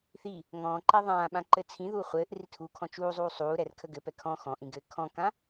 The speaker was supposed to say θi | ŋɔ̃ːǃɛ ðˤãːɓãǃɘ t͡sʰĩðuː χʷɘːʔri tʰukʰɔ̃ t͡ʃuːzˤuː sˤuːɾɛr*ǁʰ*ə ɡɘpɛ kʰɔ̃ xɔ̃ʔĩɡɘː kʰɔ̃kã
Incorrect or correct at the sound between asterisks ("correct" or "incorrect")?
incorrect